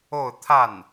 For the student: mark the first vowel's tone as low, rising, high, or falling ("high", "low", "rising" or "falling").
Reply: falling